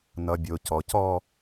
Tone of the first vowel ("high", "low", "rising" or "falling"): low